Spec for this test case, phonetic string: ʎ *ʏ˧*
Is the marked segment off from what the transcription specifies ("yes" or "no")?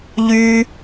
yes